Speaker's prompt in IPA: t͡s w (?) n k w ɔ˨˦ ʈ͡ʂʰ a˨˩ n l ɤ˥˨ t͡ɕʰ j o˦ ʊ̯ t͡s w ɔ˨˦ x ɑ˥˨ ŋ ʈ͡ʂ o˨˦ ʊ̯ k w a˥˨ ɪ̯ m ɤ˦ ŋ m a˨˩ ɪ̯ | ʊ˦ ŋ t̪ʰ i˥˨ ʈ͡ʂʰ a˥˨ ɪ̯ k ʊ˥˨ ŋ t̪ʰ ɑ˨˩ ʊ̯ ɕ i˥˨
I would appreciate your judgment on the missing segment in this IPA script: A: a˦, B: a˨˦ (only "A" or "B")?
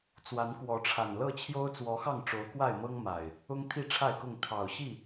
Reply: B